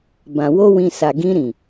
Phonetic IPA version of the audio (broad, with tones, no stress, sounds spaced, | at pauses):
b ã˨ w o˧ w ĩ˨ s a˨ ɡ ĩ˧ ɾ ĩ˨